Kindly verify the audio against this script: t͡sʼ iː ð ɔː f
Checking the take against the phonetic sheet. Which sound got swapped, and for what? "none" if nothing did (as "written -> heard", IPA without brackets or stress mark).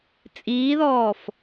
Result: none